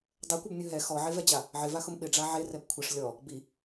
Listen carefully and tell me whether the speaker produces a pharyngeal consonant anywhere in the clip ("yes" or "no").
yes